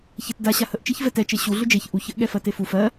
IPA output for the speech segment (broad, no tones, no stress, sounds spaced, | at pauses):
ç ɛ t d a ɕ a h ə ʔ t͡ʃ e ç v ɛ t ɛ t͡ʃ e ɕ u ɮ ʏ d͡ʒ e ç ʔ u ç ə ʔ ɠ ɛ f ɜ t e f u f ɜ